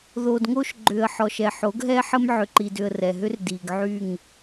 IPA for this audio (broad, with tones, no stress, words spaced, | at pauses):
ðo˨dŋo˦ʃ ɡ͡ǃʏ˨ə̯ ħɔ˨ʃɛ˨ħo˨˦ɡɦɛ˦ ħə˦m ʕʏ˨ǃi˨dʏ˨ə̯ rɛ˨ɦʏ˦r di˨ɡʕy˦˨ŋ